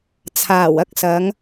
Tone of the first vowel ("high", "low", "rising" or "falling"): low